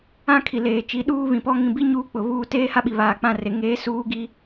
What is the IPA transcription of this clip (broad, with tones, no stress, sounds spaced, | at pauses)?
ã˦ kʰ i˨ l eː˨ t͡ʃ i˨˦ ɗ uː˦ β ĩ˨ p ɔ˦ ŋ ĩ˨ b i˦ ɲ uː˦ k͡p ʊ˨ β uː˦ t eː˦ h a˦ ɓ i˨ β aː˨ k͡p ã˦˨ r e˨ ŋ eː˦ s uː˦ ɡ i˦